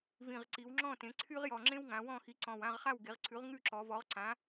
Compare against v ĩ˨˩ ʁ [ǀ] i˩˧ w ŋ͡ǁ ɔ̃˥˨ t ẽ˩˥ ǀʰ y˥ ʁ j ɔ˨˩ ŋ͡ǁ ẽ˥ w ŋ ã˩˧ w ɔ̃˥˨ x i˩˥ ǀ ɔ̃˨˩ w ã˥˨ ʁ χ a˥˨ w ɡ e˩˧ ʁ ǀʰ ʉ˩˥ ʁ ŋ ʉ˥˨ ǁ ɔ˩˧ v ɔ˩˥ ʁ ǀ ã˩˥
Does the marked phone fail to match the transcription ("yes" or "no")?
no